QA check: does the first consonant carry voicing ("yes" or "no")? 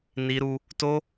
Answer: yes